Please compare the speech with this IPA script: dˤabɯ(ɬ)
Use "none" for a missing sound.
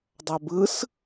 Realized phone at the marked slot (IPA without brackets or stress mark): s